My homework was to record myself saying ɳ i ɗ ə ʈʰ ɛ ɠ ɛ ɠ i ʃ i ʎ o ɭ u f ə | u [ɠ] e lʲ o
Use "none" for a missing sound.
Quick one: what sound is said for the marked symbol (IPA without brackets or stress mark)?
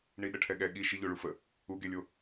ɡ